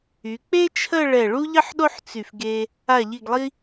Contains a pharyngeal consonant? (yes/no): yes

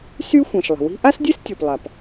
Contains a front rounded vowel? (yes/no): yes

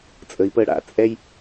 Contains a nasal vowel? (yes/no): no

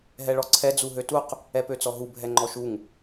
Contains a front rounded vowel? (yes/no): yes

